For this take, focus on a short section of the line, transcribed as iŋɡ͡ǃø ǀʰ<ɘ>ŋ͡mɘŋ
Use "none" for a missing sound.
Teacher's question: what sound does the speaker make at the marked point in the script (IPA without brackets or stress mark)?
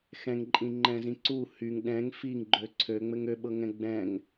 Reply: ø